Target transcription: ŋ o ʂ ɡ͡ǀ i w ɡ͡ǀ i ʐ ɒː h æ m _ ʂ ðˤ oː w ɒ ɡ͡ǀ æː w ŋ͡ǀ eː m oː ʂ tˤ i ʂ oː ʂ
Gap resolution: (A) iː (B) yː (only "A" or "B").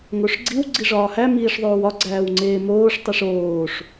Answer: A